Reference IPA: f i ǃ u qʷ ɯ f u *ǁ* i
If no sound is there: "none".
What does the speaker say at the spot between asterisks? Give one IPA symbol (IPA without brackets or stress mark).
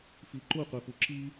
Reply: ǁ